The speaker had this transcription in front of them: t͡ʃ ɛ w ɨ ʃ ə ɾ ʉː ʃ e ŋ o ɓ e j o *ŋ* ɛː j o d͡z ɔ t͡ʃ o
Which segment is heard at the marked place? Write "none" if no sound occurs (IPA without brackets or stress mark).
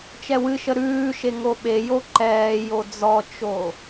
ǃ